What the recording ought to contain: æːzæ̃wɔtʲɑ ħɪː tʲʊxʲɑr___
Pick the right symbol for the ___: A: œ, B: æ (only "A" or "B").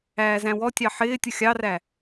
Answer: B